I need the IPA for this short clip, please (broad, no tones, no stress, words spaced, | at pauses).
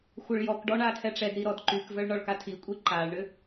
xʷœɭjɔkɖɔ ɳatʰɛʈ͡ʂɛdɾi ɾɔdǃykvœɭ ɳɔɭkatʰikʷʼi ǃaɭɳʏ